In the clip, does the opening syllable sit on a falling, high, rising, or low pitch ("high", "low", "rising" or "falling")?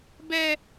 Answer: high